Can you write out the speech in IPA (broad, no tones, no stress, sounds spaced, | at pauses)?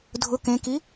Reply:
dʱ ʊ k ẽ k i